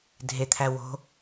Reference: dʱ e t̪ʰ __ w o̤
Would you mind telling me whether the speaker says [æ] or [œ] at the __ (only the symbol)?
æ